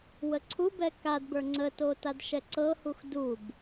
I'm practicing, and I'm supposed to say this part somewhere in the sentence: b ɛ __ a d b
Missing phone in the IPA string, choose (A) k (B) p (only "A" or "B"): A